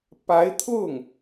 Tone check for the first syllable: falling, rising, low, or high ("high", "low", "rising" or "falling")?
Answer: rising